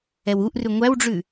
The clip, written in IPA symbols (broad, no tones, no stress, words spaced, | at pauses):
ɛwuʔrʉ ŋʷæwɖ͡ʐʉ